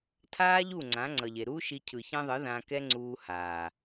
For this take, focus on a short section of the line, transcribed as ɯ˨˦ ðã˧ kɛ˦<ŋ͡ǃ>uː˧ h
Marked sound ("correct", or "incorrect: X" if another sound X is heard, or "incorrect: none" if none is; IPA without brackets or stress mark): incorrect: ŋ͡ǀ